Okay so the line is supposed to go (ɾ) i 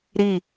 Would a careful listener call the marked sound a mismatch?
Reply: no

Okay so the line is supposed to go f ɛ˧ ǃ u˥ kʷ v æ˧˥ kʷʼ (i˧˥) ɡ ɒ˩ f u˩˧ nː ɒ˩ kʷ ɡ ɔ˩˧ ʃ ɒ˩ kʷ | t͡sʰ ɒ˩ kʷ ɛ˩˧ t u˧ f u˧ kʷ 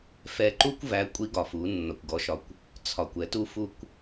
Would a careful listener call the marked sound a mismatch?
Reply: no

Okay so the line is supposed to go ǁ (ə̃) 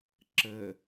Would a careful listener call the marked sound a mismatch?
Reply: yes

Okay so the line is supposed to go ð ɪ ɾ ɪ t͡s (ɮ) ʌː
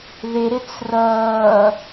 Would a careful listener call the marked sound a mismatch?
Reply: yes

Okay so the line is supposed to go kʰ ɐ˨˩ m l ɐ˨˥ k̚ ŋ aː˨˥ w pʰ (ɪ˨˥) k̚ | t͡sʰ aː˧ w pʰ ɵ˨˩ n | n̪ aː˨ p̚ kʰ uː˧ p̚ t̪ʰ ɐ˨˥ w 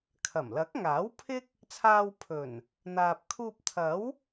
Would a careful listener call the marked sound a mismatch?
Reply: yes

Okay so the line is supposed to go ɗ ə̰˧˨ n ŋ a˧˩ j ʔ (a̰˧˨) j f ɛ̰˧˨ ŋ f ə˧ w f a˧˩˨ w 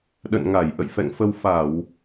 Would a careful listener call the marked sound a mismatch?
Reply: yes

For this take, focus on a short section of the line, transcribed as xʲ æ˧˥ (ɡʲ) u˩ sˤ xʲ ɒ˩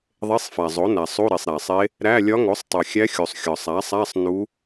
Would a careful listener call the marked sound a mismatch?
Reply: yes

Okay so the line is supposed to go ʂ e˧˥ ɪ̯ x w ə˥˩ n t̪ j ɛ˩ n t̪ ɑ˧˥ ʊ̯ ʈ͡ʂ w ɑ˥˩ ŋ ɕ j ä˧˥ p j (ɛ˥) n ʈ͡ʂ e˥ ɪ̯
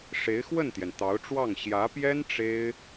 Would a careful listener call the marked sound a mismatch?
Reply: no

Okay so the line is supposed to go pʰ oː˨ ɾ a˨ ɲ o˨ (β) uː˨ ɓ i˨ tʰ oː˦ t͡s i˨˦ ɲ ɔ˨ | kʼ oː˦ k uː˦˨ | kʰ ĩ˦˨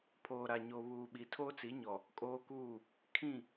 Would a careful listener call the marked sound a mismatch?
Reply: no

